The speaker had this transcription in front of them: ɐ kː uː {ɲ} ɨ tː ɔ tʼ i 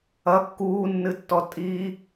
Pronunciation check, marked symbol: incorrect: nː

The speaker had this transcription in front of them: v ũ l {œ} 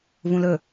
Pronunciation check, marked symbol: incorrect: ɵ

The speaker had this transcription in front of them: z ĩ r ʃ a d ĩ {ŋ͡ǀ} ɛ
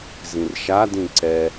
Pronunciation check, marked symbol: incorrect: ǀ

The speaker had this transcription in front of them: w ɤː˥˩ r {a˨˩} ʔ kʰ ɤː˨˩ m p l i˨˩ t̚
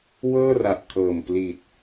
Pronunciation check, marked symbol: correct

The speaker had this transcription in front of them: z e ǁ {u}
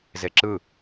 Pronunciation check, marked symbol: incorrect: ɯ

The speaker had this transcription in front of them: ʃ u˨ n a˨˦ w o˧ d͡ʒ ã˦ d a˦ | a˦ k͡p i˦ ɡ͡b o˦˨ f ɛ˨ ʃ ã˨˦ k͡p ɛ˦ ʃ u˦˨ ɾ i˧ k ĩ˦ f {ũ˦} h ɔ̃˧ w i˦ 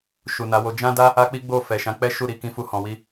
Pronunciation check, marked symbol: incorrect: u˦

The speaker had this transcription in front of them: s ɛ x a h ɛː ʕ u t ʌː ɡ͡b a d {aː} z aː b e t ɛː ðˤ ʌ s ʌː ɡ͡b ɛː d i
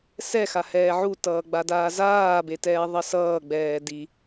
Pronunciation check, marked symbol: correct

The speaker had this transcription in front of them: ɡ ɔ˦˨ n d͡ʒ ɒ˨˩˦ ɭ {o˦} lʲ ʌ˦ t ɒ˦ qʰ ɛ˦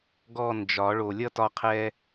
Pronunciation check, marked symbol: incorrect: o˨˩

